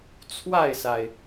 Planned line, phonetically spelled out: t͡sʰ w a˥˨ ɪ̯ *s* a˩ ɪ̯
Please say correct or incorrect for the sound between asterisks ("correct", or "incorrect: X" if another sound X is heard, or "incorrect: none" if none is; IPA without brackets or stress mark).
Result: correct